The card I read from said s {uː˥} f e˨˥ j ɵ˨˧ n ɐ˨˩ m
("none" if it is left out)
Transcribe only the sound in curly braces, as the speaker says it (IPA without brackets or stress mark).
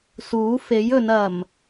uː˨˥